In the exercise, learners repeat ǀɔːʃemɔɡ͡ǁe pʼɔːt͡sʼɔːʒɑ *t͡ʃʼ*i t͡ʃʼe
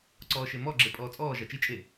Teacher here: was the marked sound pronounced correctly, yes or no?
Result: no